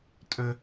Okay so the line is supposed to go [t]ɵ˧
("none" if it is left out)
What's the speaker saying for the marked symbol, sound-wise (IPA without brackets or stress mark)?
tʼ